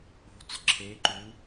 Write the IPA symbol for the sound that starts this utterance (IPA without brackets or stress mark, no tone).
o̤